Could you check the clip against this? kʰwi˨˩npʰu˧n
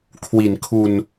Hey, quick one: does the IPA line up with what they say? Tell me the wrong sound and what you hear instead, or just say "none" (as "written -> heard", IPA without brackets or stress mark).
pʰ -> kʰ